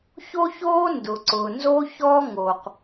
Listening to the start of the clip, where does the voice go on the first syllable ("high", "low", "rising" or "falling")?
high